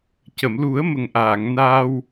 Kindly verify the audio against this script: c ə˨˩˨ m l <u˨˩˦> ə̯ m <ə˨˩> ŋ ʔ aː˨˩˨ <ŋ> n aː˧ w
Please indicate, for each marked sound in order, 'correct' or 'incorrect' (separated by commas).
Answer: correct, correct, correct